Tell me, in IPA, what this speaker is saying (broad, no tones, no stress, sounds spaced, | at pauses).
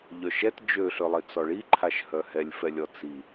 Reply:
ʎ œ ʃ ɛ t d͡ʒ ø ɬ ø lˠ i t͡s ɔ ɭ i ǃʰ a ʃ h œ h ɛ lʲ f ɛ lʲ ɔ t͡s i